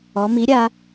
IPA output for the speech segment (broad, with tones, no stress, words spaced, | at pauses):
ɔ˩˧mi˩˥ɾʲa˩˧